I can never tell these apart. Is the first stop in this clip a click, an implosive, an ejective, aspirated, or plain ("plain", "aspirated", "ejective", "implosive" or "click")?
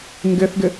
plain